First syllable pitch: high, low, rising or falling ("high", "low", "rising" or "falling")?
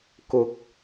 rising